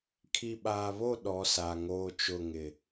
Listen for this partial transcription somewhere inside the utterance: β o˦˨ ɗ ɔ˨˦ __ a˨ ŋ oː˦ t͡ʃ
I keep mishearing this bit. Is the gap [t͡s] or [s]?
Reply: s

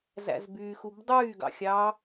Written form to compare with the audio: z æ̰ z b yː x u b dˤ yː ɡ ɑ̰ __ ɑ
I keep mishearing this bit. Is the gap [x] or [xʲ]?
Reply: xʲ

